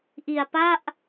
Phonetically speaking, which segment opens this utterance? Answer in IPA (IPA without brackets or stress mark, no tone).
ʔ